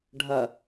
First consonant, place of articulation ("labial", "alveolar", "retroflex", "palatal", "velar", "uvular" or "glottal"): retroflex